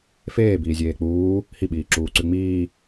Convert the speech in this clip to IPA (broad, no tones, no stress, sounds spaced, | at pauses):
f eː b iː zʲ eː k͡p uː | h i ɓ iː ǁ uː ǀ ʉ ŋ͡m iː